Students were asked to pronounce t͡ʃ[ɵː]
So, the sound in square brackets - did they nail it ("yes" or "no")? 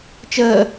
no